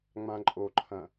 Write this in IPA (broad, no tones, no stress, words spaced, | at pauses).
ŋ͡mãǃʼoǃʰɐ̃